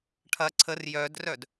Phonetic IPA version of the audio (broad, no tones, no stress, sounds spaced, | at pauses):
ʈʰ ɐ ǀʰ ə r j œ d r œ d